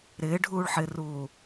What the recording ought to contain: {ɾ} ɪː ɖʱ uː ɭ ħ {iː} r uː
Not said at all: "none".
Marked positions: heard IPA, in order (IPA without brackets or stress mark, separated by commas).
ɾ, ɪː